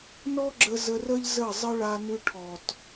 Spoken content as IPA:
n ɔ˦ ɡ͡ǁ ə˧ z ə˧ r ə˦ ʎ z ə˦˨ zˤ ə˦ ɭ a˧ n ʉ˧ ʈʰ ɔ˨ t

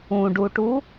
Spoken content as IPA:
ũ ɖ u ʈ u

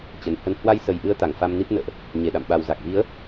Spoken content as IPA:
t͡ɕ ə˨˩ n h ə˧ n h w a˧ j s ə˨˩ j ʔ ɨ˨˦ ə̯ t̪ a˧˩ ŋ f a˧ m n i˦˥ p̚ n ə̰ː˧˨ ʔ | ɲ e˧˩ ɗ a̰˧˨ m ɓ a˨˩ w z a˨˩ k̚ v i˨˦ ə̯

